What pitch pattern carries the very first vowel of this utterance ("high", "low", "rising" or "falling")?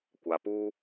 low